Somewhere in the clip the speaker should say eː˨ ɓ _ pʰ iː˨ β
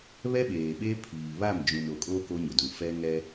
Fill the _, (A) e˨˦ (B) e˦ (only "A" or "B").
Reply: B